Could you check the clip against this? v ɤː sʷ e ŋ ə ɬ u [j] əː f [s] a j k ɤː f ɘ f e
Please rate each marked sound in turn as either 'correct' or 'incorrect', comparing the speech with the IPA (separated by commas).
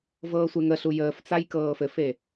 correct, incorrect